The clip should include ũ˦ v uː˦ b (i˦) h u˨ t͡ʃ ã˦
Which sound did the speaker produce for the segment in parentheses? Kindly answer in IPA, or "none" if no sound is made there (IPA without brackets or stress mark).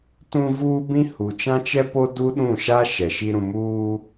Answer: ĩ˦